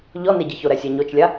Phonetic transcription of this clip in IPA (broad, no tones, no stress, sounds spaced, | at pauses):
ʎ ɔ n e ɟ ɨ ç o ɾ ɛ sʲ a ɲ o t͡ʃ lʲ a